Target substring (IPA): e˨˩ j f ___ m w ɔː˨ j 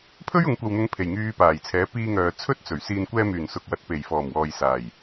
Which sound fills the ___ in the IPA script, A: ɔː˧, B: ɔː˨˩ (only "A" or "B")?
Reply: B